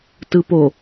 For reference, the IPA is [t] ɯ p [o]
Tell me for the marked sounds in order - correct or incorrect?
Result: correct, correct

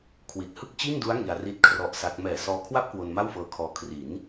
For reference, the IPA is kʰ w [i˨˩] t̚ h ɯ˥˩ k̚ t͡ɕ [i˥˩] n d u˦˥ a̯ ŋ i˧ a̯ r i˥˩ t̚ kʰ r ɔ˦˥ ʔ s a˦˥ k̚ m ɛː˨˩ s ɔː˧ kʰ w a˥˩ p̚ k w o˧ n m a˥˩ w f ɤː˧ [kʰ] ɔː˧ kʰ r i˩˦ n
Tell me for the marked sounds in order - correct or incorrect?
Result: correct, correct, correct

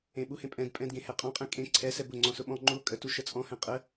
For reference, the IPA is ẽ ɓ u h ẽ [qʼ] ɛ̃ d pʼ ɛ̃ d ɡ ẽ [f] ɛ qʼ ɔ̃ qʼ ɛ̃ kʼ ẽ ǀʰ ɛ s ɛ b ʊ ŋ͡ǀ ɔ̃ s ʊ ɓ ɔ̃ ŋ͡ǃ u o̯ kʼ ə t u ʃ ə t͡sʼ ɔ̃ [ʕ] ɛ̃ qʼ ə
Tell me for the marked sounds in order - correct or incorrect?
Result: incorrect: pʼ, incorrect: h, incorrect: h

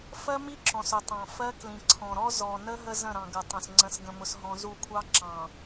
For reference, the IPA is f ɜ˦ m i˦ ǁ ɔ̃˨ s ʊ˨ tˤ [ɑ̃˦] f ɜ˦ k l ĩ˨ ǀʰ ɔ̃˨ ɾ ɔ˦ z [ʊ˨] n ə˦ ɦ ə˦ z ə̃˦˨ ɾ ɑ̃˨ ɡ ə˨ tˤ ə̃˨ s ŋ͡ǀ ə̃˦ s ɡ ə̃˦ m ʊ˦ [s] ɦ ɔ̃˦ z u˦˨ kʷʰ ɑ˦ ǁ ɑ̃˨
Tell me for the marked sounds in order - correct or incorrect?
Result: incorrect: ɑ̃˨, incorrect: ɔ˨, correct

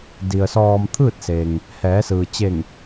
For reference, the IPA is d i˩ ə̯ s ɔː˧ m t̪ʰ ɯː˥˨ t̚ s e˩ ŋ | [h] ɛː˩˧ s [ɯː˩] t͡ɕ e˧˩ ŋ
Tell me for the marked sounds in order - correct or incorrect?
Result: correct, correct

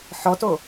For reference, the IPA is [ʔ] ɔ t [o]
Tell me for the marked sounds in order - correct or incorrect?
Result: incorrect: ħ, correct

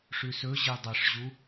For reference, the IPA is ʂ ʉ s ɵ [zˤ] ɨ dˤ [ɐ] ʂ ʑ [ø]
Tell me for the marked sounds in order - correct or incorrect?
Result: incorrect: ʑ, correct, incorrect: u

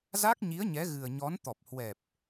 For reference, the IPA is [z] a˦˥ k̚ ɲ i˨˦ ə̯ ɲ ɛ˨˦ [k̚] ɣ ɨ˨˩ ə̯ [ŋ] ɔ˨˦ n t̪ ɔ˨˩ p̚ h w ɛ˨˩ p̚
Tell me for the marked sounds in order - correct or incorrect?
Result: correct, incorrect: none, incorrect: ɲ

